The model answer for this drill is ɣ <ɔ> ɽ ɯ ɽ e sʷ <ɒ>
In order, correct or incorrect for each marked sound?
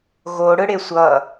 incorrect: o, incorrect: ʌ

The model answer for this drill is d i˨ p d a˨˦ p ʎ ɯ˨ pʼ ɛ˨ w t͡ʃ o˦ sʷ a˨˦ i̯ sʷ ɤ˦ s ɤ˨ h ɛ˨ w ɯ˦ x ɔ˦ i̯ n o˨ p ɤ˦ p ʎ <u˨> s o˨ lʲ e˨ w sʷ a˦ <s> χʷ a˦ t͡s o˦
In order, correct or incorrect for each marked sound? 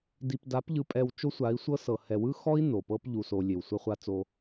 correct, incorrect: none

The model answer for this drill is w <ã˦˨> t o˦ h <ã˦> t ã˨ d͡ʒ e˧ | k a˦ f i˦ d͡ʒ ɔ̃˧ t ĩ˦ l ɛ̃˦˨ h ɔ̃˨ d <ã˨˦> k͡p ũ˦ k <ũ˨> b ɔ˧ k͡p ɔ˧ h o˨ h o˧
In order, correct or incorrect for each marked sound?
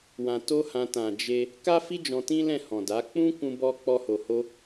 incorrect: ã˧, incorrect: ã˧, incorrect: a˨˦, incorrect: ũ˧

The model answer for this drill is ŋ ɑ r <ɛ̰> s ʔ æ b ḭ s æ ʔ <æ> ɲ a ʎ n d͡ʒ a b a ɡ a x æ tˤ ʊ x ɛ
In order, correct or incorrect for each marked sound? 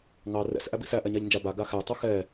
correct, incorrect: ɛ

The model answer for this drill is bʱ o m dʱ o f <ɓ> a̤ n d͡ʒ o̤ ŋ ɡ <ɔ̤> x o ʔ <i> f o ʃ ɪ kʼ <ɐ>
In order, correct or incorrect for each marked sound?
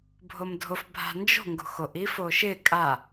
incorrect: bʱ, incorrect: o̤, correct, incorrect: a

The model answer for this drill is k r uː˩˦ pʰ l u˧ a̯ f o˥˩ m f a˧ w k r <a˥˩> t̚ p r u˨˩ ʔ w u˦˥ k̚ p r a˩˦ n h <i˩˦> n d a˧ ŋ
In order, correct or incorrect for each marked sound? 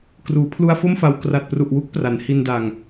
incorrect: a˨˩, incorrect: i˧

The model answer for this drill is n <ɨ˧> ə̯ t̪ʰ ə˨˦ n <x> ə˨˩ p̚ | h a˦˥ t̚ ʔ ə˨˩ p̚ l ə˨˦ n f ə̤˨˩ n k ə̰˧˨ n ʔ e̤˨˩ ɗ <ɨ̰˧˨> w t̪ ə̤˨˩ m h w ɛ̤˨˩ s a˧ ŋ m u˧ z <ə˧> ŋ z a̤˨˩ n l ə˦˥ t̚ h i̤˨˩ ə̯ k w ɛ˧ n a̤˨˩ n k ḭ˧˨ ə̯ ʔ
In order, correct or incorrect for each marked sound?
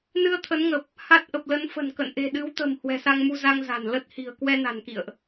correct, incorrect: ŋ, incorrect: ɨ˨˦, incorrect: a˧

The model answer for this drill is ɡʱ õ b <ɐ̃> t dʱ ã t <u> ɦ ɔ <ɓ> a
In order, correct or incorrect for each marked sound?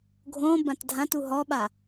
incorrect: ã, correct, correct

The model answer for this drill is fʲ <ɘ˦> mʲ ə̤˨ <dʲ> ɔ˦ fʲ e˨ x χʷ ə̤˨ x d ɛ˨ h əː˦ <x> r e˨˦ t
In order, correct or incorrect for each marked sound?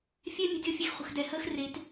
incorrect: ɛ˦, correct, correct

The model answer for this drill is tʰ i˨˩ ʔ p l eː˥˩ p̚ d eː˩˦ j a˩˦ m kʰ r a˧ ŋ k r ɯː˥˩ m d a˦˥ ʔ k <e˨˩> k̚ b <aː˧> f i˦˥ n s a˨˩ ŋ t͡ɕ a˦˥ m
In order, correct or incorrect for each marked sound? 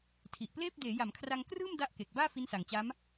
correct, incorrect: aː˥˩

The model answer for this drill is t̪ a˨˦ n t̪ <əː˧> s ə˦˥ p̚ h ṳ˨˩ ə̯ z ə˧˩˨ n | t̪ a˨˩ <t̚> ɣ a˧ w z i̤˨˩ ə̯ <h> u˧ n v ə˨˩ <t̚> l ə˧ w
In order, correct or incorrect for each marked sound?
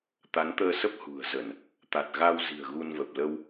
correct, correct, incorrect: ɣ, incorrect: p̚

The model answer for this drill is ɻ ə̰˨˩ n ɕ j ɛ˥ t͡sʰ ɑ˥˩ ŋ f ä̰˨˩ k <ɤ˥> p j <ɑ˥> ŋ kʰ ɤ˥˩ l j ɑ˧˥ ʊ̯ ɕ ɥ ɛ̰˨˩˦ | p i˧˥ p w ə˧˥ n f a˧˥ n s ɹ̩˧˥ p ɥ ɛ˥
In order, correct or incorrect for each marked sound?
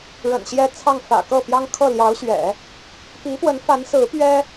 incorrect: ɤ˥˩, correct

